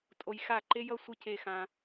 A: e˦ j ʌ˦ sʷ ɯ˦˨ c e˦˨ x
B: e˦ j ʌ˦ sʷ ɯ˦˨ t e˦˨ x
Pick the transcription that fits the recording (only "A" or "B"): A